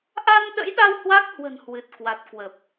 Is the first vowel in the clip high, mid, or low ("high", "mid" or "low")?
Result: low